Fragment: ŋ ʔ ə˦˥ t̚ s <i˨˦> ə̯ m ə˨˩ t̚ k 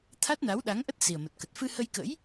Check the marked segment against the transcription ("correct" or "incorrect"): incorrect